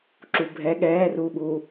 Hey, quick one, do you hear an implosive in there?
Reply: yes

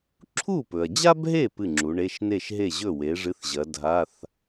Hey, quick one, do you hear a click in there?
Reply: yes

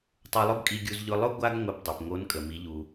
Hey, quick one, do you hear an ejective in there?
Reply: yes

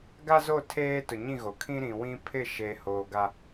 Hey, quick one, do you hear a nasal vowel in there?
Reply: yes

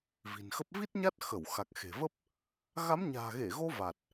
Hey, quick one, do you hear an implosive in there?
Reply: no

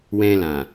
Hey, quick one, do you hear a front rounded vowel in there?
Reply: no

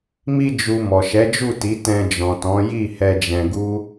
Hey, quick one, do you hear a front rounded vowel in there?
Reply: no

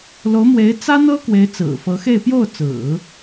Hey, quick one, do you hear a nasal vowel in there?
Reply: no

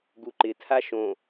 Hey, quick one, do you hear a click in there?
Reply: yes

